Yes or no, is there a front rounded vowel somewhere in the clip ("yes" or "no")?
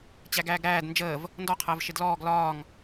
no